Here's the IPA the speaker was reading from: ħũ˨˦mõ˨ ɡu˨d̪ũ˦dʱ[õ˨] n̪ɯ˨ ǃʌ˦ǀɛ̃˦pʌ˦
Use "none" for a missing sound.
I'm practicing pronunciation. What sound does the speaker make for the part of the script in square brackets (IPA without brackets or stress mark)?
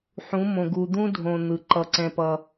õ˨